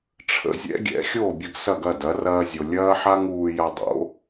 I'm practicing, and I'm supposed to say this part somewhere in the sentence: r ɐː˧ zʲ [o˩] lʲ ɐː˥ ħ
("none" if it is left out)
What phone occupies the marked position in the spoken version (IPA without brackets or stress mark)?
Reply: o˩